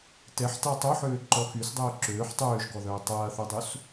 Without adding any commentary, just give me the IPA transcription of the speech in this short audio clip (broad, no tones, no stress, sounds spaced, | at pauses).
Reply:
t ɛ ħ t a tˤ o ħ øː ǃ ɔ x y s dˤ øː ǁ øː ħ tˤ øː ʒ ɡ ɔ ð œː tˤ ɐː θ y dˤ u s